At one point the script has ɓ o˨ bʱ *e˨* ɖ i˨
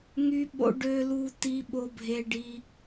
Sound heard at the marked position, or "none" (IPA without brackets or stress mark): e˨